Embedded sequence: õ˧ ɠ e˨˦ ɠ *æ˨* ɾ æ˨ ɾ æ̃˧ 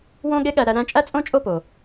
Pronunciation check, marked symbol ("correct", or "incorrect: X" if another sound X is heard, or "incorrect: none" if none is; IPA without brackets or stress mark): correct